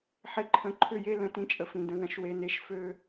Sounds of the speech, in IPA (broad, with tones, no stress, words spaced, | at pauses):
ħe˨ǃʰə̃˨˦ǃʰʏ˦˨je˦ lə̃˨tĩ˦t͡ʃʼə˨fĩ˨ də̃˦ðɐ̃˦ʃwe˦ne˦ʃ fø˦